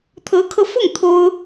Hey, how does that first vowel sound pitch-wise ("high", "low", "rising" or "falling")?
rising